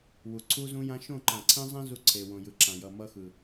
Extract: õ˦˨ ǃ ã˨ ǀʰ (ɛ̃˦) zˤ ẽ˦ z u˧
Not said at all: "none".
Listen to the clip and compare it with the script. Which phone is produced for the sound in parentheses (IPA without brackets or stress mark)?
ẽ˦